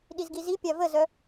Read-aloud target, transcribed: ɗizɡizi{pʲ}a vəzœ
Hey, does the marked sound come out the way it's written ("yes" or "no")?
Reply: yes